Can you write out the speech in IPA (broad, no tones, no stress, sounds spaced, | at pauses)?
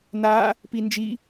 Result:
n a | p i n d͡ʒ i